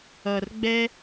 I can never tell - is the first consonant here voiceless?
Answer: no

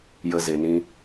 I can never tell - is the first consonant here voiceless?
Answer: no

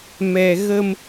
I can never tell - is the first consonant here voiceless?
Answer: no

